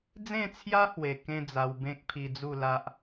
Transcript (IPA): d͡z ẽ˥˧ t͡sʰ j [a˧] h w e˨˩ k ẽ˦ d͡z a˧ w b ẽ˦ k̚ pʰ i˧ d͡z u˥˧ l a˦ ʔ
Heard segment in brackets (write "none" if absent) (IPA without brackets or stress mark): a˦